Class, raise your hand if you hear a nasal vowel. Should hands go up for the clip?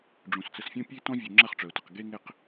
yes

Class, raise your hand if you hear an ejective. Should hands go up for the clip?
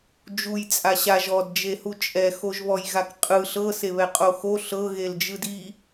yes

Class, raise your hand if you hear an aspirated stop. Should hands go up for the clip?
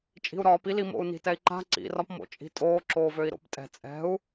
no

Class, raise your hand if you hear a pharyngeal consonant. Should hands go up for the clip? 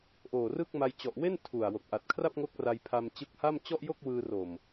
no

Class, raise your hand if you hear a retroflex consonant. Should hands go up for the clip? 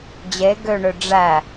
yes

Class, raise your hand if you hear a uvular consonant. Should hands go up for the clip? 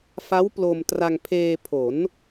no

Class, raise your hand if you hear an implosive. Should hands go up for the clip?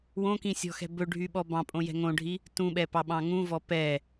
yes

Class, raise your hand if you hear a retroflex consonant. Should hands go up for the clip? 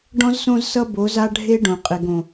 yes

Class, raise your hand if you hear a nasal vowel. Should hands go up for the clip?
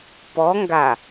no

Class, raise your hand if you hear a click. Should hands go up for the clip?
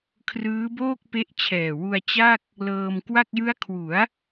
no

